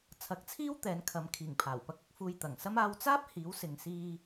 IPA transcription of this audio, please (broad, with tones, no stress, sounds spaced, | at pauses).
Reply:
t͡sʰ ɐ˨˥ k̚ t͡sʰ iː˥ w t̪ ɛː˨˥ n kʰ ɐ˨˥ m kʰ iː˨˩ ŋ pʰ aː˨˩ w p ɐ˧ k̚ ɐ˨˥ k̚ f uː˧ j t̪ ɐ˨˩ ŋ s ɐ˥ m aː˧ w t͡s aː˥ p̚ h iː˨˥ w s ɪ˨ ŋ s iː˧